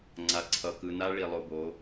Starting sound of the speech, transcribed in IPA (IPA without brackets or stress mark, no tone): ŋ͡ǀ